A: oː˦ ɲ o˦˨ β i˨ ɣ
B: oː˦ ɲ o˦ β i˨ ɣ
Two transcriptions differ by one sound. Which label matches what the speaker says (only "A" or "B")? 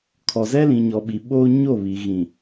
A